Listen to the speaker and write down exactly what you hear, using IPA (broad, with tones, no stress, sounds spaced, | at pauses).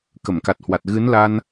k ə˧˩ m k a˨˩ t̚ h w a˨˩ t̚ ɣ ɨ˨˦ n l a˧ n